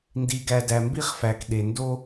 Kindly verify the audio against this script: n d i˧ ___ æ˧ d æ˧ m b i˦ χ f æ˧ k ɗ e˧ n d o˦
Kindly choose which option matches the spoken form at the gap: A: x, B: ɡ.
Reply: B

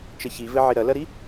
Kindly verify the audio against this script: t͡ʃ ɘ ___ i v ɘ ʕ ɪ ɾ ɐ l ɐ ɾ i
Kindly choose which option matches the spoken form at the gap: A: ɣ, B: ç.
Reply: B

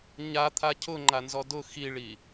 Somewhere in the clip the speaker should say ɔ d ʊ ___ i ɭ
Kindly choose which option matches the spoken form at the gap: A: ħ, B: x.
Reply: B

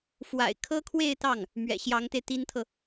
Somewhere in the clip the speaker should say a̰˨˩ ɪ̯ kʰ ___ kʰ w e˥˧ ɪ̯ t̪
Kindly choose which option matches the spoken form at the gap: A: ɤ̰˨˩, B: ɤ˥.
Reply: B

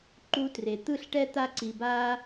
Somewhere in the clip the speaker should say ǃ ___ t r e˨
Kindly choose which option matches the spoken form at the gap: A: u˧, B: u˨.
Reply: A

